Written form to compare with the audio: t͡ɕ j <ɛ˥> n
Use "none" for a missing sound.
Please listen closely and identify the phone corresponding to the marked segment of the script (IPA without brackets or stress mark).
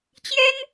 ɛ˥